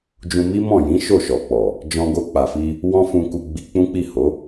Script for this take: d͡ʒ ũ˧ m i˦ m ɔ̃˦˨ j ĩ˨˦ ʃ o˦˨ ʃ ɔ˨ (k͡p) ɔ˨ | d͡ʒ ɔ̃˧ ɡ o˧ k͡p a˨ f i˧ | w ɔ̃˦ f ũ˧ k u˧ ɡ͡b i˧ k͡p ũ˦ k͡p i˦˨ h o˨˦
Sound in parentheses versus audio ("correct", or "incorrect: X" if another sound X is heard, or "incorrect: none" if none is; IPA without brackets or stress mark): correct